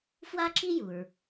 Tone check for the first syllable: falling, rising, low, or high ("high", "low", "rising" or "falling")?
high